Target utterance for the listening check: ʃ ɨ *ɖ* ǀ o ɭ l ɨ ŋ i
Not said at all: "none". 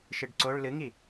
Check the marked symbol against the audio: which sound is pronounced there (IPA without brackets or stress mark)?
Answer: ɖ